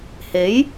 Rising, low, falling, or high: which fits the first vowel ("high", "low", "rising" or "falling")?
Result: rising